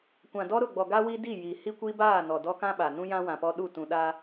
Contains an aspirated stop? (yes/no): no